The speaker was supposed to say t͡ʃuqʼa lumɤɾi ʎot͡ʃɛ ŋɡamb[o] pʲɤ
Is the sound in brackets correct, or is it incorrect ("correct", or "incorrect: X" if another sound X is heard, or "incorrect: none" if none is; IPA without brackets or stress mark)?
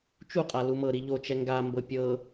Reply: incorrect: ɤ